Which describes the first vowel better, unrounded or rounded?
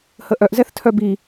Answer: unrounded